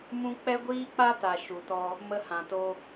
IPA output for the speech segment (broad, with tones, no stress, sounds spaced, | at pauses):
m ũ˦ k͡p ɛ˦ ɡʷ iː˦ k͡p a˦ t a˨ ʃ u˨ t ɔ˧ | m ə˧ h ã˨ t o˧